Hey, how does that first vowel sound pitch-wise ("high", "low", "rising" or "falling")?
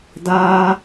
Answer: high